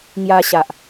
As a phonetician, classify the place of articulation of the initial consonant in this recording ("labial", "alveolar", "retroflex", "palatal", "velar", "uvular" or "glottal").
velar